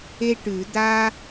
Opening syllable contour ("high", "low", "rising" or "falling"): high